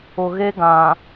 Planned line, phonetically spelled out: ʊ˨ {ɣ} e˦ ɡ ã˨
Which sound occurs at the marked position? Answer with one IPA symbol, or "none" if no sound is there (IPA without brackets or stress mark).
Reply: ɣ